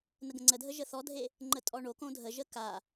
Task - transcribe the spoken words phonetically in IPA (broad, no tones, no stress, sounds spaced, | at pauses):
n ə ɡ ə̃ ŋ͡ǀ ə dʱ ə ʒ ə θ ɔ dʱ e | ŋ͡ǃ ə tʼ ɔ ɳ o k õ dʱ ə ʒ ə k a